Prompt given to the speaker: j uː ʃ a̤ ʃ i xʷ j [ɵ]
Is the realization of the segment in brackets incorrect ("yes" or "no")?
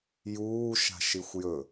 no